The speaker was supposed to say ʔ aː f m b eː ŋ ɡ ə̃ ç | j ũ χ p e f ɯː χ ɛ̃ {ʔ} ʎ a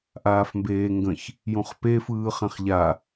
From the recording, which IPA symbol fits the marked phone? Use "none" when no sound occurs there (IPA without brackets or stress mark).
χ